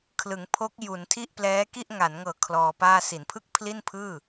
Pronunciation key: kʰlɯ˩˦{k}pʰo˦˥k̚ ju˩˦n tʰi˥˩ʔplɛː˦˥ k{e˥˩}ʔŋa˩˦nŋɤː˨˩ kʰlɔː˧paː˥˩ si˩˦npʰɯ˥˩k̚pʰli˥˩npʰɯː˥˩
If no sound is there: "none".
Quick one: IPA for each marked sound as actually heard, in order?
ŋ, i˥˩

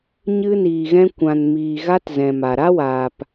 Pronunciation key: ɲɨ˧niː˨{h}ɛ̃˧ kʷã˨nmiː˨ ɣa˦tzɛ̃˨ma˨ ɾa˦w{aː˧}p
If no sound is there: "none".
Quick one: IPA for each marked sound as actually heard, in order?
ɣ, aː˨

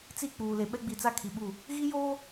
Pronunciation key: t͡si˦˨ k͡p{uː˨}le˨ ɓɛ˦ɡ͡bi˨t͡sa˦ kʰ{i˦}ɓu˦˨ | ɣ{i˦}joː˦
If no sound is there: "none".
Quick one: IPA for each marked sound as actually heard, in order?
uː˨, i˨, i˦

